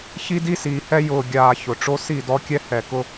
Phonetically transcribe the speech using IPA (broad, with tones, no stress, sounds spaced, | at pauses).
ç i˦ d i˦ s iː˨ h ɛ˦ j ʊː˨ ɡʲ aː˨ ç ʊ˨ ʈ͡ʂ o˦ s i˦˨ d ɔ˦ kʲ ɛ˦ h ɛ˨ k ʊ˦